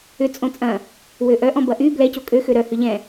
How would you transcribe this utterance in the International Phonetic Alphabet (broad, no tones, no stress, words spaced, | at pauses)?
ʏ t͡sʼõt͡sʼɐ̃ | wøʔœʔɔ̃ bɐʔy blɛco kʼøxø ɾœ hʏʎɛ̃